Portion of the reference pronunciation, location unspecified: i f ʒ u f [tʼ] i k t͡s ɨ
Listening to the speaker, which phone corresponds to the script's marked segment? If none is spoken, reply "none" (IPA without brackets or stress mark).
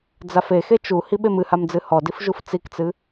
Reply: t͡s